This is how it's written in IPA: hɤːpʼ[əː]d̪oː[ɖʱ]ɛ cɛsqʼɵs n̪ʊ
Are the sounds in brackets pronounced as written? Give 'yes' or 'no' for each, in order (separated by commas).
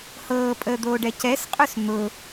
yes, no